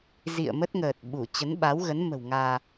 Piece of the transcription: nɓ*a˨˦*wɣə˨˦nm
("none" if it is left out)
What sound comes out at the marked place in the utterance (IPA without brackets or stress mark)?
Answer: a˨˦